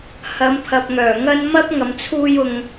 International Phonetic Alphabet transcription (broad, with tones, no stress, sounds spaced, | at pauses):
h ɐ˨˧ m pʰ ɐ˨ p̚ ŋ œː˨˩ ŋ ɐ˥ n m ɐ˥ p̚ ŋ ɐ˨˧ m t͡sʰ uː˥ j ʊ˧ ŋ